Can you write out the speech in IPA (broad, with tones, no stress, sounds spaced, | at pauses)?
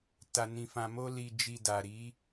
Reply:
t a˧ n ĩ˧ f ã˧ m o˦ l i˧ d͡ʒ i˧ d a˨ ɾ i˨˦